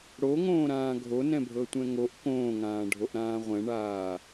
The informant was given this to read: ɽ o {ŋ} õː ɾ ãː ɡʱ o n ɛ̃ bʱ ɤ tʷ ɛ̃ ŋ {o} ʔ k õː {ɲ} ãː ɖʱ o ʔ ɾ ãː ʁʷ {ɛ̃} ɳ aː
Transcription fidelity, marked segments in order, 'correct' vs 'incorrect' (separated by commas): correct, correct, incorrect, correct